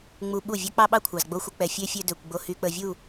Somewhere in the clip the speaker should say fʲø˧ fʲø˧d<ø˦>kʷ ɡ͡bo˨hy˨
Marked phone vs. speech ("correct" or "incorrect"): incorrect